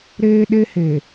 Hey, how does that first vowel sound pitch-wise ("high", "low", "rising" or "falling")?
high